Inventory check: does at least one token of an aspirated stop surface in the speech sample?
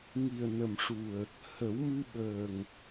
no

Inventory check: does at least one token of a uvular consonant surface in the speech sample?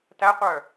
yes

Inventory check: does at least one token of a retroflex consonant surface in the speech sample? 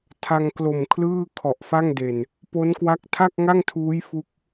no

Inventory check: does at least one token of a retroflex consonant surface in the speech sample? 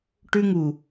yes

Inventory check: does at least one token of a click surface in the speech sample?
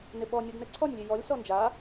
yes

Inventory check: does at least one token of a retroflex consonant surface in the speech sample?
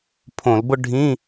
yes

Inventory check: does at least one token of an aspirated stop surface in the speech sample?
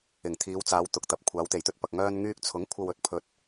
yes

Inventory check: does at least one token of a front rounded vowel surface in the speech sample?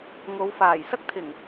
no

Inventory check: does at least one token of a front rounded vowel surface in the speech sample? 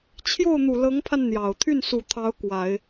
yes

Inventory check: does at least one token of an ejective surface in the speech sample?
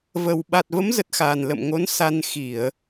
no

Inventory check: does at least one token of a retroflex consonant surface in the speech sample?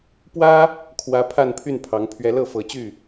no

